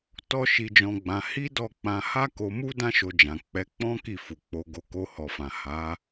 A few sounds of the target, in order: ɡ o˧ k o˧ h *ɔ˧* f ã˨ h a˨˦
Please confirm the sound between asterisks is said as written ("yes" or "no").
no